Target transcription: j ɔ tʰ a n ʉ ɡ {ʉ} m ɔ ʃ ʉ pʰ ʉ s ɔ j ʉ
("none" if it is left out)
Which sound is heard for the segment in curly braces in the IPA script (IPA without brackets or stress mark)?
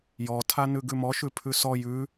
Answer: ʉ